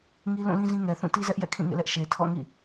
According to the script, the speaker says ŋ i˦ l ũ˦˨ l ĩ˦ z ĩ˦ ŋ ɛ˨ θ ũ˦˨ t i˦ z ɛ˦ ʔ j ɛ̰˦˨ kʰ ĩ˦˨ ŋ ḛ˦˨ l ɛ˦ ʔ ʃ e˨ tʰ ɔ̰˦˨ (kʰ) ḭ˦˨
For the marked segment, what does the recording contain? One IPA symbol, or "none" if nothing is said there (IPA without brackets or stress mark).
ŋ